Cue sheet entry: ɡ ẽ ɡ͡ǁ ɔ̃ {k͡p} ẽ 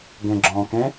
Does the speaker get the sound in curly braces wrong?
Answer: yes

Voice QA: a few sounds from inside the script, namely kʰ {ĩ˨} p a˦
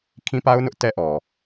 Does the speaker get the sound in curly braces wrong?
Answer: yes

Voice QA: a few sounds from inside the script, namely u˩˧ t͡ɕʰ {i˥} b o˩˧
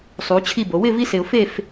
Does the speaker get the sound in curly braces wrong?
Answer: yes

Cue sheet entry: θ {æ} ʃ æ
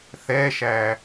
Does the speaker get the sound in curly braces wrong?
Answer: yes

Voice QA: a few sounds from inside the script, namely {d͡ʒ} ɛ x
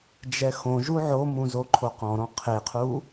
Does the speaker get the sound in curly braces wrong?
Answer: no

